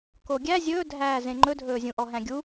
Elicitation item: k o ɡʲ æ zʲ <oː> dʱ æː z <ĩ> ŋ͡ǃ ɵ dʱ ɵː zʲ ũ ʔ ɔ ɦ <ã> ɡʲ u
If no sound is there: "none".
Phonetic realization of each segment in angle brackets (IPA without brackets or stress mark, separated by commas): ɵː, ẽ, æ̃